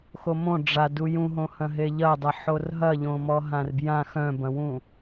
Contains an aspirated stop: no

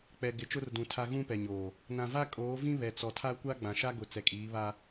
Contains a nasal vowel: yes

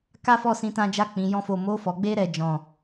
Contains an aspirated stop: no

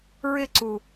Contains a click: yes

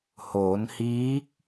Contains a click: no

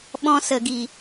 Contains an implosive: yes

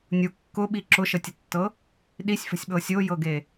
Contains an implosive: yes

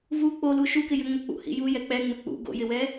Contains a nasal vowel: no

